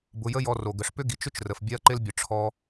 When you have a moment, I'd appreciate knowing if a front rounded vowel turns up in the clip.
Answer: yes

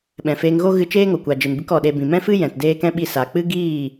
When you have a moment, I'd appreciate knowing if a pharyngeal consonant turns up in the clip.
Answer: no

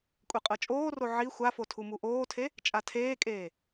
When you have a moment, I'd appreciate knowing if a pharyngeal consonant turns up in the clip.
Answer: yes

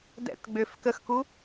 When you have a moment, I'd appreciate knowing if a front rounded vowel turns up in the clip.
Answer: yes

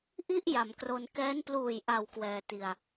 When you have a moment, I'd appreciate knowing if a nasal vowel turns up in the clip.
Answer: no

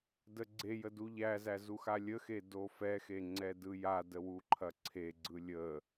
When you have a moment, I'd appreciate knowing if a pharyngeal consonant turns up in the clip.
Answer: no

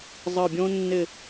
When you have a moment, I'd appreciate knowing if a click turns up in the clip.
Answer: no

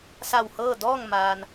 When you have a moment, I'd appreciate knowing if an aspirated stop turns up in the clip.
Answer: no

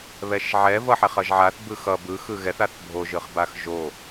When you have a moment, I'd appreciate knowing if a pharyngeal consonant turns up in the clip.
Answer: yes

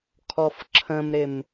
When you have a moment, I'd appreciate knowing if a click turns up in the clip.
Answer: yes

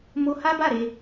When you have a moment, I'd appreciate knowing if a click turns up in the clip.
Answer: no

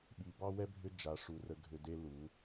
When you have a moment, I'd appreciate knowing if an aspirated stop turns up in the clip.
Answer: no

